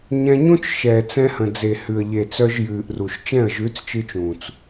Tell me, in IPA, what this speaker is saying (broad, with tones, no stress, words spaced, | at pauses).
ɲɛ̃˧ɲũ˦t͡ʃ ʃɛː˨t͡sɛ̃˧hə̃˨ d͡ze˨hʉ˨ə̯ʎe˨ t͡sœ˧ʒjɨː˨ʔru˨ʃ t͡ʃɛ̃˦˨ə̯ʒʉ˨˦t͡st͡ʃɨː˧t͡ʃ ũː˨t͡s